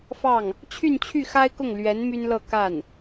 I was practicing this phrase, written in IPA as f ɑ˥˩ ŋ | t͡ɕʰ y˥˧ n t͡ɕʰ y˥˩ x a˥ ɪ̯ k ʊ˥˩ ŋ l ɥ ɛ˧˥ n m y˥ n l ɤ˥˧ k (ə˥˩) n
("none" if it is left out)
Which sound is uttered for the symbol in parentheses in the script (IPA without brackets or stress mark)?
a˥˩